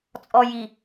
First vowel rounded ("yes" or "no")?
yes